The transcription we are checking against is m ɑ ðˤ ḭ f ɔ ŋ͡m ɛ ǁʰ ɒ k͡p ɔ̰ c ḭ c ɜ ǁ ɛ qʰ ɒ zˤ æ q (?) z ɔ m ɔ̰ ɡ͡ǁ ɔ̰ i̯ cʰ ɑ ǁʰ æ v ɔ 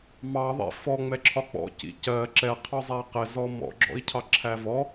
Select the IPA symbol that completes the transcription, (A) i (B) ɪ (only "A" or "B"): B